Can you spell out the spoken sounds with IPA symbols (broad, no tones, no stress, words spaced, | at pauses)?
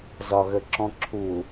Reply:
zɒɣəǁɔ̃ǁʰu